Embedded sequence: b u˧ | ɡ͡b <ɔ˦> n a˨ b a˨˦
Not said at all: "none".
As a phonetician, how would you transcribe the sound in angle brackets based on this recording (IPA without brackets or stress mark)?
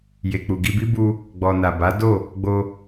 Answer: ɔ˨